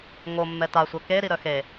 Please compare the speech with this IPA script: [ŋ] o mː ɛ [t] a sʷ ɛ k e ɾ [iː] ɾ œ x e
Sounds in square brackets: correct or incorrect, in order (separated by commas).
correct, correct, incorrect